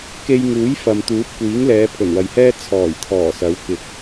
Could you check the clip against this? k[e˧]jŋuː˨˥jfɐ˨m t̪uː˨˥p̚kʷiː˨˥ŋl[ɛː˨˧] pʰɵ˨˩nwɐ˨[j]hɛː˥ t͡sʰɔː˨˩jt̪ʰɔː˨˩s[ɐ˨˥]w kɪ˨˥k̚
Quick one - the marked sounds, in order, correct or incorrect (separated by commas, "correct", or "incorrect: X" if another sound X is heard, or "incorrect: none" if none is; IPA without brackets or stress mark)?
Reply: correct, correct, correct, correct